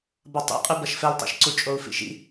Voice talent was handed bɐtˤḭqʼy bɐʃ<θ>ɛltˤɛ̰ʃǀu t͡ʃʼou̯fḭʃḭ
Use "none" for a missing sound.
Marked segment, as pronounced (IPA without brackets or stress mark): f